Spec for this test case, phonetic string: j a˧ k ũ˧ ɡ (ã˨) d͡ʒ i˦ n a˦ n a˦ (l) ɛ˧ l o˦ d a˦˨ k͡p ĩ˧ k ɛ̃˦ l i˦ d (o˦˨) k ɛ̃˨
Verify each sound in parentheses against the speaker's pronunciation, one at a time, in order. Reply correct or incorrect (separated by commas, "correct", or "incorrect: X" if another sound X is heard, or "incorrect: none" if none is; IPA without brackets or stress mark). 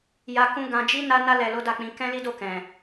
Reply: incorrect: ã˧, correct, correct